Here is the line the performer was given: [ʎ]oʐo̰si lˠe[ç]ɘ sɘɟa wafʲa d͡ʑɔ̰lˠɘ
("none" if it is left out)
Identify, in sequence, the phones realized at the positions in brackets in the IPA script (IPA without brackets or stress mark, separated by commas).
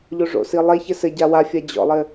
ʎ, ç